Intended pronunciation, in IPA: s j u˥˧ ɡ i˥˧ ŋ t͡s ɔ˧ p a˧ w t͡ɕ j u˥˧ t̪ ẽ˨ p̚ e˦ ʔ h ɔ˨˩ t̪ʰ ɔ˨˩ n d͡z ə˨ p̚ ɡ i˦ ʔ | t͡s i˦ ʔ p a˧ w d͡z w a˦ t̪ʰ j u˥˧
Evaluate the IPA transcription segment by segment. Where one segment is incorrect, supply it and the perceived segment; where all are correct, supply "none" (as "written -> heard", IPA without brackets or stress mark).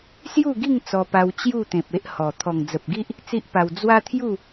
n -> ŋ